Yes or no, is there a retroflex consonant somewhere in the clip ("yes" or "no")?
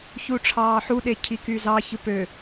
yes